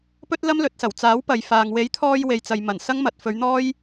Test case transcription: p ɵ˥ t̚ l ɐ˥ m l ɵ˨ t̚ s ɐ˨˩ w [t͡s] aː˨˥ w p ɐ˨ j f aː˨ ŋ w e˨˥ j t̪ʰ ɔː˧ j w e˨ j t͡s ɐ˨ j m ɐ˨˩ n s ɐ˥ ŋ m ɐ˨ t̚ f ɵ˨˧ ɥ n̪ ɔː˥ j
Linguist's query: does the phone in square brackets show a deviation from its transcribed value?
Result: no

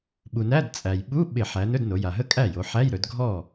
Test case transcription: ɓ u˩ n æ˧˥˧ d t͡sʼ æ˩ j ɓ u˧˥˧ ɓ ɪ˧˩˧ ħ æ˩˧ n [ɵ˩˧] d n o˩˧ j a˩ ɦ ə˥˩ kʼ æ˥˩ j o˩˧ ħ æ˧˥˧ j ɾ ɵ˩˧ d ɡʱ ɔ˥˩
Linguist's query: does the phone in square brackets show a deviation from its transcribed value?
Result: yes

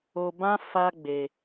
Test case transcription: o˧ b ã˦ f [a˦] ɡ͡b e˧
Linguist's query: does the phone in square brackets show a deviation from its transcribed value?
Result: no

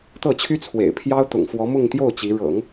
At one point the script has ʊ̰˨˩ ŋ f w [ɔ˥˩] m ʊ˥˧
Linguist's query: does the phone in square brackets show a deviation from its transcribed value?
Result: yes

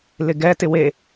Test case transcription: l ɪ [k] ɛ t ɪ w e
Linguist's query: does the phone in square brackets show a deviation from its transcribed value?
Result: yes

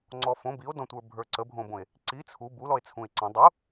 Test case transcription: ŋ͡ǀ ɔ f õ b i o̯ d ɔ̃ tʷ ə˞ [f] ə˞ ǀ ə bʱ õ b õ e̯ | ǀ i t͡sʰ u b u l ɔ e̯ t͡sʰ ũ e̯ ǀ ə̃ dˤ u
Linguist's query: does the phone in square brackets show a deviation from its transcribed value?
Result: yes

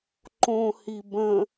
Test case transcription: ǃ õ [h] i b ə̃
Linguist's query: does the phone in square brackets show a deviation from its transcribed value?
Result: no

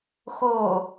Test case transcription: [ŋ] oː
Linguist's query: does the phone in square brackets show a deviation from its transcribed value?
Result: yes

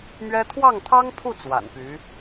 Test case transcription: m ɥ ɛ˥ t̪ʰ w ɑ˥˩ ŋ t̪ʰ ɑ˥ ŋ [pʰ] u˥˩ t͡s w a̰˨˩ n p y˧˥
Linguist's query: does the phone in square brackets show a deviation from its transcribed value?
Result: no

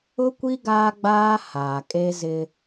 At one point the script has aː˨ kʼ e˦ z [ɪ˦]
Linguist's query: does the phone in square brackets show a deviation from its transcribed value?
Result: no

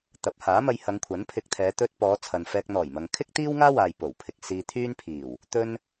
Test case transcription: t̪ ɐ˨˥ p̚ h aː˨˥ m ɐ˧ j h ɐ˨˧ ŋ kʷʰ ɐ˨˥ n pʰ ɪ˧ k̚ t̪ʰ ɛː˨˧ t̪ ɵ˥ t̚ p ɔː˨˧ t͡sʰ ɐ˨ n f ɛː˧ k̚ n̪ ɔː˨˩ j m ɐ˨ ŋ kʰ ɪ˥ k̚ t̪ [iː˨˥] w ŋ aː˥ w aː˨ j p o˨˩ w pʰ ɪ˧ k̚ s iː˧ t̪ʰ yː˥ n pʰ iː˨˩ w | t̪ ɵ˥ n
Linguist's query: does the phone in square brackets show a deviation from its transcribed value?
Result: yes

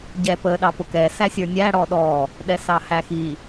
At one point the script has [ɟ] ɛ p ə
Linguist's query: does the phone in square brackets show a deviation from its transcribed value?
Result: no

